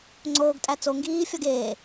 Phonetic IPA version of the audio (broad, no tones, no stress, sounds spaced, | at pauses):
ŋ͡ǀ oː ɡ tʼ æ t͡s o ŋ ɡ iː fʲ ɒ ɡ eː